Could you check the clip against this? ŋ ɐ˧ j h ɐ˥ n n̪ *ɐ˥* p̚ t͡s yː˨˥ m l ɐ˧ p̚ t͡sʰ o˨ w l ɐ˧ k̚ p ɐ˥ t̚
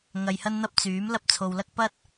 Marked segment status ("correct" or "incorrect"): correct